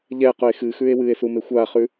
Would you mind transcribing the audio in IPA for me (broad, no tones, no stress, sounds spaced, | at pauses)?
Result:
ʎ ɛ q ʊ e̯ x ɨ x ʉ e̯ w ɨ e̯ s u m e xʷ a χ ʉ